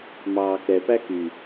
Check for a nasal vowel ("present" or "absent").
absent